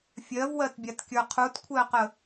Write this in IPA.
fʲ ɜ v w ɜ t bʲ a t kʲ ə˞ qʰ u t kʷʰ ɛ ə̯ q ə

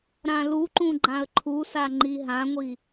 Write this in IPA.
ɾ ã l u ǃ ũ ɡ͡ǃ ã ə̯ ǃʰ u s a ŋ͡ǃ i ɦ ã ŋʷ i

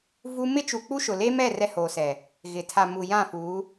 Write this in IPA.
v u˦ m ɪ˦ t͡ʃ u˨ k͡p u˦ ʃ ʊ˨ l e˦ m ɛ˦˨ r ɛ˦ h oː˨ s ɛ˨ | ɣ ɪ˨ tʰ a˨ m u˨ j ã˦˨ f uː˨˦

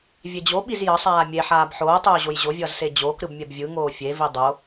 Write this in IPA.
vʲ e d͡ʑ o ɓ i z j ʌ sˤ aː mʲ e ħ aː b ħ oː tˤ oː ʑ o j ʑ o vʲ ʌː z s e d͡ʑ oː k ɾ ɯ b mʲ ɛ b vʲ ɯ ŋ oː fʲ e v i dˤ o

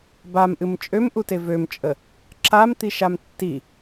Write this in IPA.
b a m ʔ ɨ m t͡ʃʼ ø m ʔ u t e v ø m t͡ʃʼ ə | ǁ a m t̪ i ʃ a m tː i

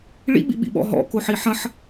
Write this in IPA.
ɭ ḭ ɓ ḭ ɓ ḭ ɓ ɔ̰ ɦ ɔ̰ k o ħ i ħ ɐ̃ ħ

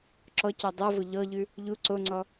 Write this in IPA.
ǁ ɔ c ɔ dˤ ɤ v o ʎ ɔ ʎ ʉ | ʎ u ǀ o ŋ͡ǀ ɔ

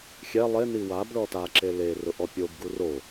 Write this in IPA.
xʲ ɛ lˠ e n i w a b ɭ ɔ t a ǁ e l e r ʊ ʔ ɔ pʲ o b ɡ u r o

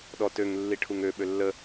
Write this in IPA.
ɗ ɔ t ø ŋ lː i ʈʰ u ŋ ø ɓ ø lː ə

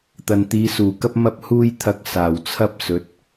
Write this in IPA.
t̪ ɐ˨ n t̪ iː˨˧ s uː˨˩ k ɐ˥ p̚ m ɐ˧ p̚ h uː˧ j t̪ʰ ɐ˨˥ k̚ s aː˨˩ w t͡sʰ ɐ˥ p̚ s ɵ˨˥ t̚

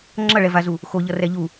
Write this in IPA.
ŋ͡ǁ ʌ ɭ ɛ v a z u | x o ʎ ʌ r ɛ ʎ u

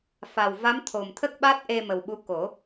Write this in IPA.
f a˨˩ w v a˧˥ m t̪ʰ o˨˩ m t̪ʰ ə˦˥ k̚ ɓ a˦˥ t̚ ʔ e˧ m ə˨˩ w ɓ u˧˥ k o˨˩˦

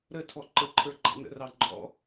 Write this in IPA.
ɾ ə tʰ ɔ ǃ ə ǃʰ ə˞ ɡ͡ǃ ɑ̰ n ə̰ r ɑ ɡ͡ǃ ɔ̰

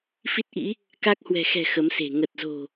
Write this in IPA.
f i˦˥ t̚ ʔ ḭ˧˥ | k a˦˥ k̚ h w ɛ̤˨˩ x ɛ̤˨˩ x ə˨˦ m s e̤˨˩ ŋ ə˨˩ t̚ z o̤˨˩

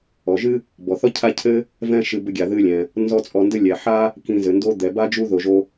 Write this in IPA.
ɔ˩ ʒ ɨ˥ | b ɔ˩ θ ɔ˥ cʰ a˦ cʰ ɘ˦ | v ɛ̃˥ ʃ ɨ˨ b ɘ˦ ɡʲ a˩ ð ɨ˦ lʲ ɛ̃˩ | n z ɔ˦ t͡sʼ ɔ˨ n d ɘ˥ lʲ ɛ˩ ħ a˥ | k ĩ˨ z ɘ˩ n d o˦ d̪ ɛ˩ b a˥ d͡ʒ u˥ ð o˨ ʒ o˦

